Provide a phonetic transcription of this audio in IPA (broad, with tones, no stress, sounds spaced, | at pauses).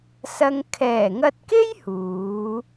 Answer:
s ɐ˧ ŋ kʰ ɛː˨˩ ŋ ɐ˧ t̚ k e˥ j h uː˨˥